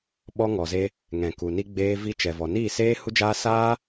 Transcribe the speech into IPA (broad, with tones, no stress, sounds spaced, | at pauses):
ɓ ɔ˧ ŋ ɔ˨ z e˧ | ŋ ɛ̃˨ k u˨ n i˧ ɡ͡b eː˧ v i˧ t͡ʃ ɛ˨ v ɔ˨ n iː˦˨ s eː˦ h u˦ d͡ʒ aː˦ s aː˦